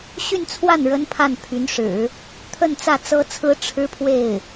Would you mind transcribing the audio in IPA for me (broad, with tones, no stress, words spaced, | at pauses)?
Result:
ɕy˥˧nt͡sʰwa˥˩n ɻə˥npʰa˥˩npʰy˧˥nʂɻ̩˨˩˦ | t̪ʰə˥˧nt͡sä˥˩ t͡sɤ˥t͡sʰɹ̩˥ ʈ͡ʂʰɻ̩˥pʰwe˥˩ɪ̯